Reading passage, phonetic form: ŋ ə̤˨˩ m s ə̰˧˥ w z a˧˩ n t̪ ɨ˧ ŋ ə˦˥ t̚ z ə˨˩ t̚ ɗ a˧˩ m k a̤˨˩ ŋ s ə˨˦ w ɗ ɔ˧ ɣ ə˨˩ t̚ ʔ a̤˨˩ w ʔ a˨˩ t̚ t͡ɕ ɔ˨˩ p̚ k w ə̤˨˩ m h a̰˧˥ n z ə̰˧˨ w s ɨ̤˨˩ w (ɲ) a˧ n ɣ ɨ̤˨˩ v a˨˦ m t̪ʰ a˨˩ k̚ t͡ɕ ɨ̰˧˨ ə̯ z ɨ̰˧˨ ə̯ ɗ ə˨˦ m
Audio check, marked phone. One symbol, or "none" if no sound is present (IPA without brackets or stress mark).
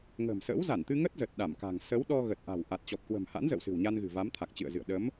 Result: ɲ